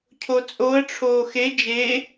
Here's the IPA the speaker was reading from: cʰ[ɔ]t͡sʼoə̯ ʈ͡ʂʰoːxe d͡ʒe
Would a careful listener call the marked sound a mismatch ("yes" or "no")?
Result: yes